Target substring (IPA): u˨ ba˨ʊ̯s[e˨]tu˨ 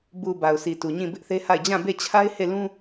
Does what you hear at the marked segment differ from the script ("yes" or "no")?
yes